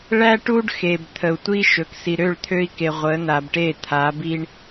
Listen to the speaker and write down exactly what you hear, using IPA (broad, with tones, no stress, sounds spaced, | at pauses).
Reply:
ɭ æ˦ ʈ u˦ ɖ x e˨ b t̪ʰ ə˨ u̯ tʷ i˦ ʃ ɵ˨ k s i˨ ɾ ø˦˨ ɭ t̪ʰ ø˦ i̯ k e˨ ʁʷ ə˨˦ n a˨ b ʈ e˦˨ t̪ʰ a˨˦ b i˦ ɳ